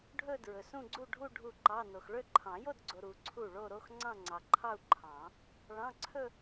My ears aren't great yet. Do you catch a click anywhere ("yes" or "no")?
yes